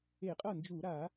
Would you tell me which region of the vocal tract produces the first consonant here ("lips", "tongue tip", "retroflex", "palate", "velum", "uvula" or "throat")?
uvula